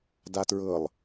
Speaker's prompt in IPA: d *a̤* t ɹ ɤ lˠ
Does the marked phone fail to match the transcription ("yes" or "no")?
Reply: yes